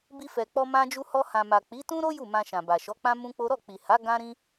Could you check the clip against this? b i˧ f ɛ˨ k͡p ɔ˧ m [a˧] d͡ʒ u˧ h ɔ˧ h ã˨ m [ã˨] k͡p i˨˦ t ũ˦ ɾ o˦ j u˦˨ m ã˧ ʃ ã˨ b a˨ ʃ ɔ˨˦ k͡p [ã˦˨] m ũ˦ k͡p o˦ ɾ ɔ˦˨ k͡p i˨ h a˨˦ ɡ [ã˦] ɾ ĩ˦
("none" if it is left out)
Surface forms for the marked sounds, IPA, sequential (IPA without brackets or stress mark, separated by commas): ã˧, a˨, ã˦, ã˦